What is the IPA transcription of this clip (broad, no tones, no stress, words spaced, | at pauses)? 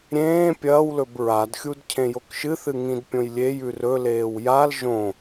ɾʲẽː pʲɐːwlɵb ɹadxʲud cʰẽjokʃɨθɨ ŋĩdpʲõjlʲejʉ rɵleːw jal ʒõ